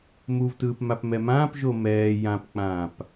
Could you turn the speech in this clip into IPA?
muvtɯːp mapmɛmãːpʒo mɛː jãpk͡pãːp

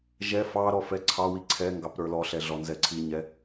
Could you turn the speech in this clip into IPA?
ʒɛ fɑɾɔ fɛǀʰɑwi ǀʰɛŋɡɑp ɾə˞lɔɬɛ ɮɔnzɛǀʰiɲɛ

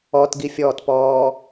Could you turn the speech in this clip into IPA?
ɔtɡifʲɔːtpɔː

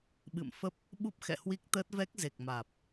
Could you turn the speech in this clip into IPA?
ɓɨ̰˧˨m fə˦˥p̚ | ɓu˦˥p̚xɛ̰˧˨hwi˦˥k̚t̪əː˦˥t̚ vɛ˦˥k̚ze˨˩k̚maː˨˩p̚

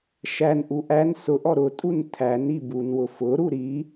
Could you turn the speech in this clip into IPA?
ʃænʔu ʔæn sʊʔɔ ɾʊtʼun tʰæni bunwʊ fʊɾu ɾi

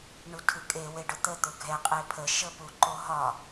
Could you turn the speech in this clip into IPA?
ɳutʰɯkʼe weɖʊt̪ə t̪ʊɡʱɛ qʼepʰə ʃəpuǃoɦɒ

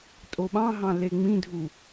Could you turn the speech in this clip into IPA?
tʼoɓɑ̃ɦɑ̃ leŋ͡mĩdʱu

